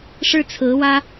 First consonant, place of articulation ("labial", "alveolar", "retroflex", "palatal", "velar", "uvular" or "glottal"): retroflex